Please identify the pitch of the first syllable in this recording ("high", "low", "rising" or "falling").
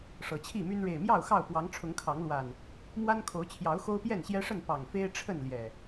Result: low